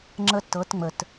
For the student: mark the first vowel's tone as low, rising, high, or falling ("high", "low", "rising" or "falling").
high